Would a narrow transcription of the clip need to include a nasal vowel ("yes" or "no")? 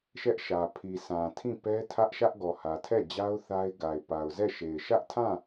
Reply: yes